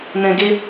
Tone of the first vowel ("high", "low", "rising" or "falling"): low